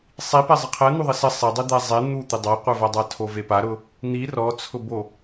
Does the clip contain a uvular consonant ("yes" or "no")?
yes